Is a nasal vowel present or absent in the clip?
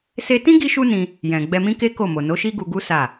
present